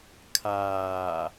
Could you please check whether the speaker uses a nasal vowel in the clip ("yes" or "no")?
no